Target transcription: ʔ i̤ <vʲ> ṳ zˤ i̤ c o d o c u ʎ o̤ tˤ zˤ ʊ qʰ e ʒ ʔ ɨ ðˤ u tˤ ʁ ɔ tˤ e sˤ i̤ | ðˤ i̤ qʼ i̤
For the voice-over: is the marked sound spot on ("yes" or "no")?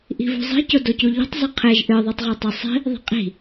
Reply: no